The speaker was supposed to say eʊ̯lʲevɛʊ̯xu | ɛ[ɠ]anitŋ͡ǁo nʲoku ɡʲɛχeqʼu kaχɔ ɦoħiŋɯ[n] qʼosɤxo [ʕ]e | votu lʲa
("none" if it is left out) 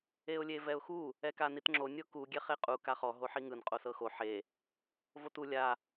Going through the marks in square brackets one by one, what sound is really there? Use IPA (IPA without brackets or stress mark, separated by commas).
k, n, ħ